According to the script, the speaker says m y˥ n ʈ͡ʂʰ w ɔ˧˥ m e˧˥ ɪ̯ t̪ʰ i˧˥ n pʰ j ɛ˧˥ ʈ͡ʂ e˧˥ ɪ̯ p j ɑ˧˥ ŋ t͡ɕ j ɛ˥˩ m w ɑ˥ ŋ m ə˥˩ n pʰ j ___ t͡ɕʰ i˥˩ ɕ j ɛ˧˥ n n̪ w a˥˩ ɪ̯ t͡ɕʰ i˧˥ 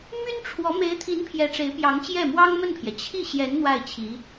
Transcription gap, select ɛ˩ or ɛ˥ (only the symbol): ɛ˩